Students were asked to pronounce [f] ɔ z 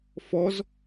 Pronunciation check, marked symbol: correct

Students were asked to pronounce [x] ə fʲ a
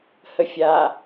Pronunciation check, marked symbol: incorrect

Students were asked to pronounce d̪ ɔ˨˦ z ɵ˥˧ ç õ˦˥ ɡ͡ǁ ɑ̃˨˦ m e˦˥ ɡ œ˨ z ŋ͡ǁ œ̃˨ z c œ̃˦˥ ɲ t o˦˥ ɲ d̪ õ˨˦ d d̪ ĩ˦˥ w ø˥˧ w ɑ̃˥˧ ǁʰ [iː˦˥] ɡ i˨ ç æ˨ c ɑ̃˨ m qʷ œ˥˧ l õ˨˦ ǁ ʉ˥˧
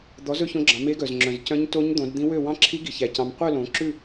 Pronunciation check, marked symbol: incorrect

